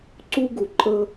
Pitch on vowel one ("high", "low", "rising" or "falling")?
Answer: high